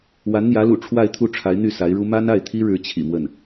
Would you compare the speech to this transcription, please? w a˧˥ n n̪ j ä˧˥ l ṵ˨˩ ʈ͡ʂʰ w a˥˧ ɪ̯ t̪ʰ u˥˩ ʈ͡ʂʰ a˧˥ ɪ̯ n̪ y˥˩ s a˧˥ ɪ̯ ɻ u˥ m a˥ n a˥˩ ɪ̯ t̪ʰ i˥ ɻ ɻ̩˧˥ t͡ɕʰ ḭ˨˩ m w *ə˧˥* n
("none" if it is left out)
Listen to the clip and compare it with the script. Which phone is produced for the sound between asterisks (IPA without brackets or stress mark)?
ə˥˩